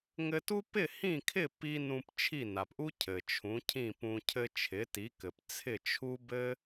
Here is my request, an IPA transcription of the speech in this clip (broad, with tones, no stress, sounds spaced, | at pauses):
ŋ ɘ˧ t u˥ p ɪ˥˩ h ĩ˥˩ kʰ ɪ˥˩ p i˧ n ũ˧ p t͡ʃʰ i˥˩ n a˩ p ʔ u˥ cʰ ɘ˩ t͡ʃʰ ũ˩˥ cʰ ĩ˥˩ p ũ˧ cʰ ɘ˧ t͡ʃʰ ɪ˩˥ t i˩˥ k ɘ˩ p t͡sʰ ɪ˥˩ t͡ʃʰ u˥ b ɘ˥